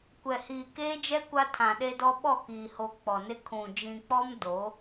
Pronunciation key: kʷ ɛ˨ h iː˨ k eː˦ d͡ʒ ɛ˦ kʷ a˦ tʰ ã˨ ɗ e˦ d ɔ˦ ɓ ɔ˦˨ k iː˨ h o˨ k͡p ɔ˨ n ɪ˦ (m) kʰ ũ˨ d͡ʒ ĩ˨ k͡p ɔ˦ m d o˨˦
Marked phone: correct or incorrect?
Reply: incorrect